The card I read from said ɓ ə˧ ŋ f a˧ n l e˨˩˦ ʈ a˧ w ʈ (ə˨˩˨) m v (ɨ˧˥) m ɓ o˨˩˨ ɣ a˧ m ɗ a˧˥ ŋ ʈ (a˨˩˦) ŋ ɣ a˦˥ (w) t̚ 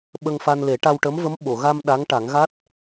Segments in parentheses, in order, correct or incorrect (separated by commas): incorrect, incorrect, correct, incorrect